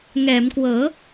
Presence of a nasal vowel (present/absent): absent